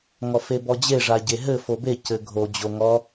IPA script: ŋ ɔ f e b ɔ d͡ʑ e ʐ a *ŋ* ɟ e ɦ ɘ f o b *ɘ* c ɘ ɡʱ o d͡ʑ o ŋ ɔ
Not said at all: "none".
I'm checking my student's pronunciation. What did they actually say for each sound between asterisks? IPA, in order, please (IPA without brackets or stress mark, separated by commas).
none, e